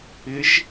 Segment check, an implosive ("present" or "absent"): absent